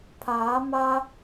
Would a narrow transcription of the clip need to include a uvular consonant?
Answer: no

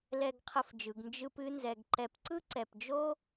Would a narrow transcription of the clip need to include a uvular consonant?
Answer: yes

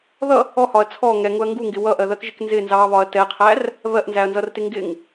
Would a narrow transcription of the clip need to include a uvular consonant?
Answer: yes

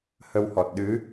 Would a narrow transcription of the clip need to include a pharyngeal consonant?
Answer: no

